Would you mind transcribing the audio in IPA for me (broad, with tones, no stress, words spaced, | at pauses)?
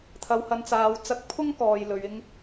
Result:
t̪ʰɐ˧whɐ˧nt͡saː˧wt͡sɐ˥k̚ pʰʊ˥ŋkɔː˨j lɵ˨˧ɥɪ˥ŋ